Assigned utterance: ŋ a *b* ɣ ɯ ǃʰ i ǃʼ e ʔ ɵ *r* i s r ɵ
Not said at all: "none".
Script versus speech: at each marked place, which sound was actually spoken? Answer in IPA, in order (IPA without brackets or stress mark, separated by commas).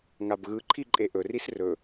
b, r